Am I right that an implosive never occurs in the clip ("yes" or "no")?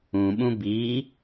no